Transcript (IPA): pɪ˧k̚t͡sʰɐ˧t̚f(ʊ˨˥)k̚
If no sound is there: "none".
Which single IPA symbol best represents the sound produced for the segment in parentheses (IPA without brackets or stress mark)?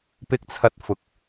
ʊ˨˥